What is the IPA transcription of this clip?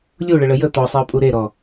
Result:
lʲuɭəɭə jə t̪ɔsˤeʊ̯pʼu ɾeɾɔ

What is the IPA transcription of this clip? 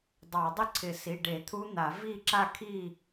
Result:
dˤɑ˨˩˦dˤɪ˥˨ǀʰɪ˨˩˦ si˩˧˩ɖe˨˩˦ t̪ʰu˦˥n̪a˨˩˦ vi˥˨ ǁa˥˨kʰi˥˨

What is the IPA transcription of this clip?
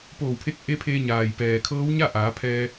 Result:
poː˧˩wpʰe˧˥k̚ʔe˧˥pʰeː˧ ɲaː˩jpɛː˩kʰɤː˧˥w ɲa˥˨ʔaː˩˧pʰɛː˧

